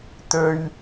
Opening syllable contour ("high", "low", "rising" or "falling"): high